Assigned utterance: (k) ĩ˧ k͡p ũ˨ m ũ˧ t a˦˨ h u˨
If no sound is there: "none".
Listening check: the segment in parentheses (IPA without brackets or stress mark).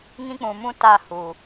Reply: ŋ